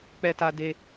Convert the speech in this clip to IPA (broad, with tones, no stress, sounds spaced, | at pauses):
k͡p ɛ˧ t a˧ d e˧